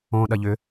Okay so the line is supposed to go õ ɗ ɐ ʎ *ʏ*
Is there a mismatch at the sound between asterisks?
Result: no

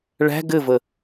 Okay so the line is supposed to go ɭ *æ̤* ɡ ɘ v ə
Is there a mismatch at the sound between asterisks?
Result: no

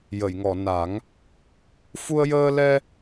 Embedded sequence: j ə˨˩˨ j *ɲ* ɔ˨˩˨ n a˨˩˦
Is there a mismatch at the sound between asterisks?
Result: yes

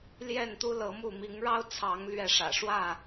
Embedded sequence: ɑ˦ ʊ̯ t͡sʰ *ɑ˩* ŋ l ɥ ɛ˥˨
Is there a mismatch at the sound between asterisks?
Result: yes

